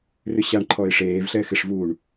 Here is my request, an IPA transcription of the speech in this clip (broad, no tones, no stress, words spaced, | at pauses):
rʏɕaɳǃʰɔɪ̯ ʂeːvɬɛ xɪʂvuːɳ